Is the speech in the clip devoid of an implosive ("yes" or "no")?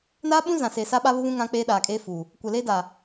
no